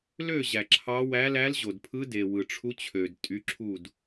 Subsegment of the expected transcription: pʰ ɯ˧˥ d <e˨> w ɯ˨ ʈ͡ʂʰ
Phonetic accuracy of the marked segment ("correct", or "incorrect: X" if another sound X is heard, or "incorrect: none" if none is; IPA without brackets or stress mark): correct